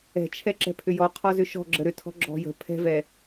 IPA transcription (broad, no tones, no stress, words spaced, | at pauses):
ɛ̤t͡ʃʰɛ ǁɛ̤pʰʏjɔ qʰɔzʏʃɔ̤ ɡ͡ǁəɾʏtʰɔ̤ ɡ͡ǁɔ̤jə̤ pʰɛ̤vɛ